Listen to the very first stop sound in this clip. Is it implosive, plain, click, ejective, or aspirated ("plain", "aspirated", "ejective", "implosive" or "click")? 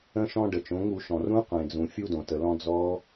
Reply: plain